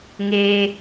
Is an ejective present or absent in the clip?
absent